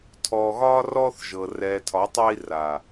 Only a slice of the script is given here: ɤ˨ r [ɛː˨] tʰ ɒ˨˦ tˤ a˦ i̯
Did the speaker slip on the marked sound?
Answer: no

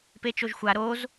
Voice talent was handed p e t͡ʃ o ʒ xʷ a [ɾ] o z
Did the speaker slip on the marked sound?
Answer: no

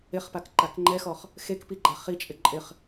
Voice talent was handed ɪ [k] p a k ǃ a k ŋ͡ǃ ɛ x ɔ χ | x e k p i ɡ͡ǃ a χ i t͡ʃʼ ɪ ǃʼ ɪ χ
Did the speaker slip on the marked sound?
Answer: yes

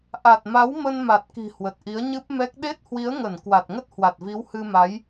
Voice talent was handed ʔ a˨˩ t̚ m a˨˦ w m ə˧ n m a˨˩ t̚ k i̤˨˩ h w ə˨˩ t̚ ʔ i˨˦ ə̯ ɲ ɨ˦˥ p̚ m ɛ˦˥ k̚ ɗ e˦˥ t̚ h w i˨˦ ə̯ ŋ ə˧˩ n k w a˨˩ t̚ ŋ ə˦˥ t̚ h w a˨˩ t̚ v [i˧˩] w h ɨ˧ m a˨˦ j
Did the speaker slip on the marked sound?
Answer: yes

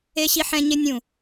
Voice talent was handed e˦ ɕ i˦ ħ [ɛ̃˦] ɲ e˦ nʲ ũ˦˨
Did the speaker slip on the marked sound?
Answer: no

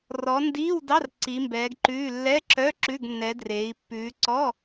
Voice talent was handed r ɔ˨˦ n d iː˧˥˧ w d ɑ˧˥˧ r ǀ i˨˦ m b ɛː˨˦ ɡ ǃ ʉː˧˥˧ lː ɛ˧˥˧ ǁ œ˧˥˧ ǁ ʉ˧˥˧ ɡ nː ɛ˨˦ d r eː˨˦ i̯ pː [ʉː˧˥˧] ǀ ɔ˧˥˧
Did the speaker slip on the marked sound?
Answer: yes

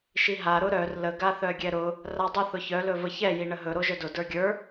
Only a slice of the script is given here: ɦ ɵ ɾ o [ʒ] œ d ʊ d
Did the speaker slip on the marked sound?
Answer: no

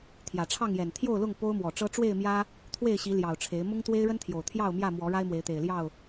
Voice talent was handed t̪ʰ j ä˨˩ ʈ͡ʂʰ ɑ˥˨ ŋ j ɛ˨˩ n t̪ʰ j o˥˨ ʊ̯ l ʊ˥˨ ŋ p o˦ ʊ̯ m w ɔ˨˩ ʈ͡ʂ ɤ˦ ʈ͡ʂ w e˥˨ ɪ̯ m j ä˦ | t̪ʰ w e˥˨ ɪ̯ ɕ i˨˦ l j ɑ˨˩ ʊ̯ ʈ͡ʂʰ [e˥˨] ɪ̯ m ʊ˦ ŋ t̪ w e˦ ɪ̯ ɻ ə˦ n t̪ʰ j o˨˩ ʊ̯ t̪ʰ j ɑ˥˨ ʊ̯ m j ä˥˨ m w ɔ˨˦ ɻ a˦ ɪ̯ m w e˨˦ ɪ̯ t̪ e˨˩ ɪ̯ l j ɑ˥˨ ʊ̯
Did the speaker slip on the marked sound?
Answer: yes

